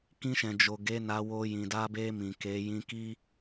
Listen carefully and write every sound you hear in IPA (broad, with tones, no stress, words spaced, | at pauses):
kĩ˧ʃɛ̃˨ d͡ʒo˨ ɡe˨˦na˧ wo˧jĩ˨ da˧be˧ mĩ˨ke˨˦ jĩ˧ki˦